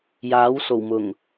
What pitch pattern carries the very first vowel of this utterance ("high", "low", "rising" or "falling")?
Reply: rising